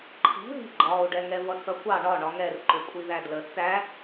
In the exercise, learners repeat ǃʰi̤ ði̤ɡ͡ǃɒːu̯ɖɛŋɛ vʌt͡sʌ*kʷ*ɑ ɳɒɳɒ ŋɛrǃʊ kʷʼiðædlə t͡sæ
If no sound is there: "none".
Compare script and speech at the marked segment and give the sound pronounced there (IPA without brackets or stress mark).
kʷ